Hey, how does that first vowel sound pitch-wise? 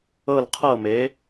falling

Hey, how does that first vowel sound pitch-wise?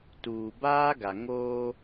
low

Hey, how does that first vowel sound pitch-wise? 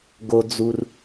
low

